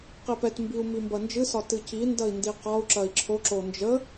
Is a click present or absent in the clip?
present